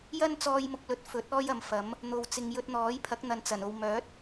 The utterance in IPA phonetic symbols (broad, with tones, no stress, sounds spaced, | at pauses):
j ɐ˥ n t͡s ɔː˧ j m ʊ˨ k̚ l ɵ˨˥ t̚ f ɵ˨˥ t̚ ɔː˥ j ɐ˨˧ m f ɐ˨˥ m | n̪ o˨ w t͡s ɪ˨ ŋ j ɵ˧ t̚ n̪ ɔː˨˥ j pʰ ɐ˨˥ k̚ n̪ ɐ˨ n t͡s ɐ˨˩ n o˨ w m œː˨˥ t̚